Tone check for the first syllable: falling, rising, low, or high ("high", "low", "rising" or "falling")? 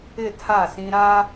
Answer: falling